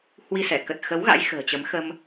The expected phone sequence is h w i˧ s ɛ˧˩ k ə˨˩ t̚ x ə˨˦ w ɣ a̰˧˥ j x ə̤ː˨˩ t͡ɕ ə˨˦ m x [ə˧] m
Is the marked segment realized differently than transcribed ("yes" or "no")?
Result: no